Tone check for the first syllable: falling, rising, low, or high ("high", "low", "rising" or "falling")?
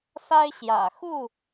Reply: high